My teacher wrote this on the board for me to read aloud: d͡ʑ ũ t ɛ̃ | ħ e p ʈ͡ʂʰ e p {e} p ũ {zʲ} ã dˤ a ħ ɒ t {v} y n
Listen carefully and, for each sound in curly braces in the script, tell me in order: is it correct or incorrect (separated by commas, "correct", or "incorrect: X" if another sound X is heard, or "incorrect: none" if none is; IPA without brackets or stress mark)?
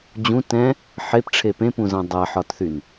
incorrect: ẽ, incorrect: z, incorrect: θ